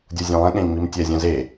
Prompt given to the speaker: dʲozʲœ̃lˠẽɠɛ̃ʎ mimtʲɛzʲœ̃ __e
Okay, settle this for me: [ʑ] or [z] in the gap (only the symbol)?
z